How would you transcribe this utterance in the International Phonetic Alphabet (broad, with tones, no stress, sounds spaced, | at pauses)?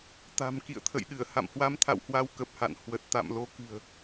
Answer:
t̪ a̤˨˩ m k ḭ˧˨ ə̯ t̪ʰ ə̰˧˨ j ɗ ɨ˧˩ ə̯ h a̰˧˨ m h w a˧ m t̪ʰ a̰˧˨ w h w a˧ w k ə˨˩ p̚ h a̰˧˨ n h w ə˨˩ t̚ t̪ a̰˧˨ m l o˧ k ɨ̤˨˩ ə̯